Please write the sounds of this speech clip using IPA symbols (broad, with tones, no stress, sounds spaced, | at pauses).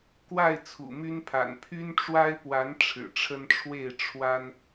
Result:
k w a˥˨ ɪ̯ t͡sʰ ṵ˨˩ m y˦ n pʰ a̰˨˩ n pʰ y˦ n ʈ͡ʂ w a˦ ɪ̯ p w a˨˦ n ʈ͡ʂʰ ɻ̩˨˩ ʈ͡ʂʰ ə˦ n ʈ͡ʂʰ w e˥˨ ɪ̯ ʈ͡ʂʰ w a˦ n